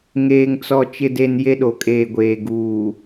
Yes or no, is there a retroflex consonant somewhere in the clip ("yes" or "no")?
no